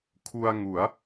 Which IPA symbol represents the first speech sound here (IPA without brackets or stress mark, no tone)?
kʰ